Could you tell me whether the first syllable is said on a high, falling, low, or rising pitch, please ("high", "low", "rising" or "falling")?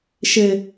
low